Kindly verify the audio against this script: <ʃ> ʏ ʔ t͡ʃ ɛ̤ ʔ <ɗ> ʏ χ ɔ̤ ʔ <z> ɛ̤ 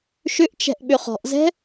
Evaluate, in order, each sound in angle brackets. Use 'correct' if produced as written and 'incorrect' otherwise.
correct, incorrect, correct

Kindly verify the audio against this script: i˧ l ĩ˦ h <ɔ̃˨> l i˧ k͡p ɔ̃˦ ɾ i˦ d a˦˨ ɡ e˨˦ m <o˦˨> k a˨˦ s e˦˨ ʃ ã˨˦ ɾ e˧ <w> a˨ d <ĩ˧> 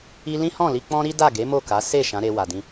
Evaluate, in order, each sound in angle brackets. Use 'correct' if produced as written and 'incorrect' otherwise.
incorrect, correct, correct, correct

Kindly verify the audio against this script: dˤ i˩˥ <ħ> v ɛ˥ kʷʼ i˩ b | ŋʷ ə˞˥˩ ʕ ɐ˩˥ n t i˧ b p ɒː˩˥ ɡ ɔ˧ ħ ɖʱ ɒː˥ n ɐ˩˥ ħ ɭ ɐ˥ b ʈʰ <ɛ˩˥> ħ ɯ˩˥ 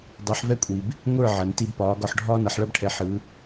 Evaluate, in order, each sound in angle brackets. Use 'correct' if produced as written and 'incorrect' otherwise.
correct, correct

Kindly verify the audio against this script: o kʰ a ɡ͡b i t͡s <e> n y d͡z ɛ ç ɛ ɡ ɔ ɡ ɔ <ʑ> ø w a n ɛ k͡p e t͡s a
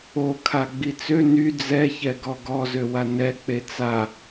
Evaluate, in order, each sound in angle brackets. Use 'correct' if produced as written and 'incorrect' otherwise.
incorrect, incorrect

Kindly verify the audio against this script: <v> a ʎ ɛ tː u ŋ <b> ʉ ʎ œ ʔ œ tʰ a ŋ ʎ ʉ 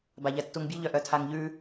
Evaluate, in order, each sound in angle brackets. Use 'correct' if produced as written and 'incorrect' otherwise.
incorrect, incorrect

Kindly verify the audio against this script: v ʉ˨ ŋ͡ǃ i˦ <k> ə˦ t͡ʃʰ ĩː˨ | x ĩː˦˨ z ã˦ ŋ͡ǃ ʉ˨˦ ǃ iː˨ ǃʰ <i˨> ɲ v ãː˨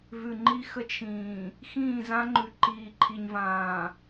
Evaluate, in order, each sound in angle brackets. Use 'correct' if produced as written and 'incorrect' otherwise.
incorrect, correct

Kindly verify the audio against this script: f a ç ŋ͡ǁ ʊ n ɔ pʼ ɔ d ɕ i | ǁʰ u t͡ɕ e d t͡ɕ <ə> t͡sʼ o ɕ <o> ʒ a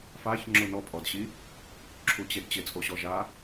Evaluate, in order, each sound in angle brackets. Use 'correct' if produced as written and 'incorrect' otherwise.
incorrect, incorrect

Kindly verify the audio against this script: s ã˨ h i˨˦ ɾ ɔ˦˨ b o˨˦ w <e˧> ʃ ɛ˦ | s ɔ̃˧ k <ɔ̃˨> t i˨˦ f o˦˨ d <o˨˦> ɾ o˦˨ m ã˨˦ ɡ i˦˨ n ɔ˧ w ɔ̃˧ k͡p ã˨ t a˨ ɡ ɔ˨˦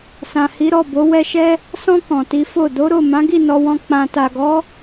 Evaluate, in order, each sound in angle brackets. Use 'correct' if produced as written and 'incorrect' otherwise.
incorrect, correct, correct

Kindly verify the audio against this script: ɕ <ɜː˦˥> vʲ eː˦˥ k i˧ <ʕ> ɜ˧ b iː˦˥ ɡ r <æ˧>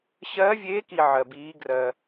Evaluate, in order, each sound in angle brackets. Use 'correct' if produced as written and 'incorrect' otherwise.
correct, correct, incorrect

